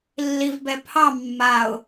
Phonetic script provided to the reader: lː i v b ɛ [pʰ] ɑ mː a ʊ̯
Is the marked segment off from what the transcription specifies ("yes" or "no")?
no